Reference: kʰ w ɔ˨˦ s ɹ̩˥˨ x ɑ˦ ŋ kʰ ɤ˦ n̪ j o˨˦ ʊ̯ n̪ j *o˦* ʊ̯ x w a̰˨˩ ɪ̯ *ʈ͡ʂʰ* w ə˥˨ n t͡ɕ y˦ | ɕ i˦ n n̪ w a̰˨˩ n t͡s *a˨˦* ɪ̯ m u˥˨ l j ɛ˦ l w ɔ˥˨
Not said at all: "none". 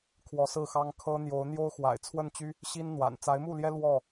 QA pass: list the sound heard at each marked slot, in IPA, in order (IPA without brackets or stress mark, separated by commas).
o˦, t͡sʰ, a˨˦